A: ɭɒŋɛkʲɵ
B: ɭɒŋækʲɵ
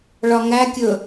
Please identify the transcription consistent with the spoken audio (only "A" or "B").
B